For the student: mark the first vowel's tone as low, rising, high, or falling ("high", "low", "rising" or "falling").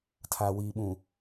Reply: low